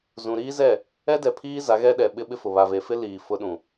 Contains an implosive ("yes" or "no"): yes